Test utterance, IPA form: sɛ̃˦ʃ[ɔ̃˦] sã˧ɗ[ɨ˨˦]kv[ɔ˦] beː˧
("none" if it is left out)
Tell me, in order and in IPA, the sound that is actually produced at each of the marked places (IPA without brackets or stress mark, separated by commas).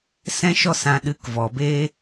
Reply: ɔ˦, ɨ˨˦, ɔ˨